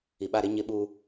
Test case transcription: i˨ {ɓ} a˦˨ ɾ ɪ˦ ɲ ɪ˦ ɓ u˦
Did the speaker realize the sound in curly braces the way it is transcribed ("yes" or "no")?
yes